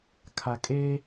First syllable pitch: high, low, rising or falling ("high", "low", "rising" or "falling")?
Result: low